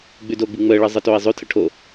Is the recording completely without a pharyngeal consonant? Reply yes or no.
yes